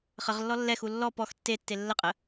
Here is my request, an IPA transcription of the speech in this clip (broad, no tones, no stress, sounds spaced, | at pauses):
χ ə ʁ lː ɔ lː ɛ x u lː ɔ p ɔ x tː e tː e lː ə qʼ ə